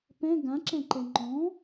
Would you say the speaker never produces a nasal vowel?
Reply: no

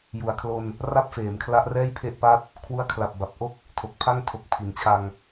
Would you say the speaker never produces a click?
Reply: yes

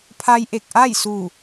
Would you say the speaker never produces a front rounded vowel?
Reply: yes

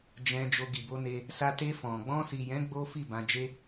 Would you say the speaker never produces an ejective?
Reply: yes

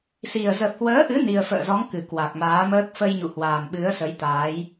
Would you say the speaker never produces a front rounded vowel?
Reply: yes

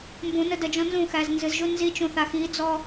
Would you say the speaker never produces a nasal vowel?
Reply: no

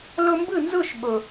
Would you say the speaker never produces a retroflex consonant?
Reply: yes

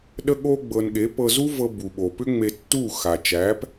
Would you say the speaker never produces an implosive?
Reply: no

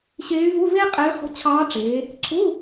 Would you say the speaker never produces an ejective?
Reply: no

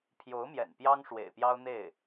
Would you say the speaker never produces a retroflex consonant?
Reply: no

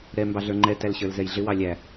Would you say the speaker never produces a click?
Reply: no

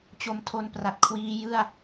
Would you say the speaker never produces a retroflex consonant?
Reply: yes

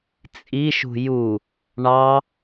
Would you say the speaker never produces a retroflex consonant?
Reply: no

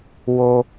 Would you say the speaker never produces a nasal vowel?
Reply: yes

